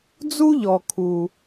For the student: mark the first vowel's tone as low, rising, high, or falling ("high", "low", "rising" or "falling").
high